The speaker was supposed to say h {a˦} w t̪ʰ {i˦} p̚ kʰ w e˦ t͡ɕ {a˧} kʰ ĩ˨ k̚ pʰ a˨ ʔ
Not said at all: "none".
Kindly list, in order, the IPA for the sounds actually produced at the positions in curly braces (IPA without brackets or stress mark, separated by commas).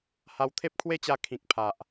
a˧, e˦, a˧